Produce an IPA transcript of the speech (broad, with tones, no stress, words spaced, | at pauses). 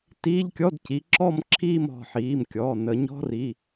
tiː˧˥˧ʎkʲɔ˧˥˧dci˨˦ ǁɔ˥˧m ǁʰiː˥˧mɔ̤˩˧˩ħiː˩˧˩mkʲɔː˩˧˩ nə˨˩˦ɲɔ̤˧˥˧ri˩˧˩